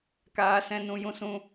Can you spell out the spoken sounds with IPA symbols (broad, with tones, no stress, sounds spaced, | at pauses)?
k aː˦ s ɛ̃˦ n ũ˦ j ũ˦ s ũ˦